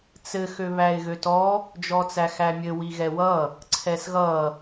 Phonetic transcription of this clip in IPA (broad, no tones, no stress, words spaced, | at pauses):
t͡sɘ xøβæɪ̯ɣøtɔ | d͡ʒɔt͡sæxæmʲɘ wiɣɛwʌ | ǀʰɛsɣʌ